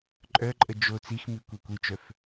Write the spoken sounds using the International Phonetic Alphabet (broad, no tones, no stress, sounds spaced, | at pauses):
ǃʼ œ ǃʼ ə d͡ʒ o t͡s i x m i kʷ e kʷ i t͡ʃ œ f